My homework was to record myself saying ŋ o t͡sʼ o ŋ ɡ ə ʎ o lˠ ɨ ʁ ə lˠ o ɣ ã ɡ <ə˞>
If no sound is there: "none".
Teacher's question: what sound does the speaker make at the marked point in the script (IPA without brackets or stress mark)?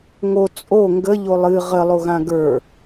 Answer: ə˞